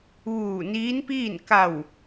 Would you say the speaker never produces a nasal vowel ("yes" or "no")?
yes